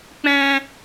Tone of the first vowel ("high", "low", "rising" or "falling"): high